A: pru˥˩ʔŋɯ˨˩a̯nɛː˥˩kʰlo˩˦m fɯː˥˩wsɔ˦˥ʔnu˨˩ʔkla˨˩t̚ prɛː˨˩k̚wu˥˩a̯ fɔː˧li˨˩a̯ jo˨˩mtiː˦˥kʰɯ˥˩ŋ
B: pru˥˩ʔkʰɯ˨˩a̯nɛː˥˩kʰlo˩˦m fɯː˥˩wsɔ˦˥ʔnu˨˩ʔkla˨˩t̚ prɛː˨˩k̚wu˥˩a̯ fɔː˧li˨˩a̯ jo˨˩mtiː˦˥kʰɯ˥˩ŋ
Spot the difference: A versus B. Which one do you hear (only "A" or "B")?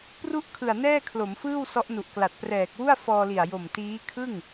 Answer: B